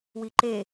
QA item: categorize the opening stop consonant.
click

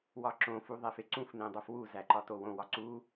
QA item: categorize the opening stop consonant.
click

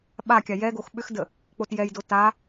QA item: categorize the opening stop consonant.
implosive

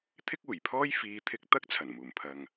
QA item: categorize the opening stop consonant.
aspirated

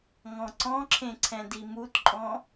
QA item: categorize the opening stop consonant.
click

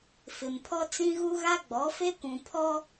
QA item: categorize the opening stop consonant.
aspirated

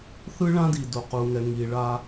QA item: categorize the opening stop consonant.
plain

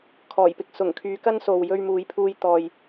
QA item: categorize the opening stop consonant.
aspirated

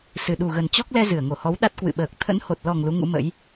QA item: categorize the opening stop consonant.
implosive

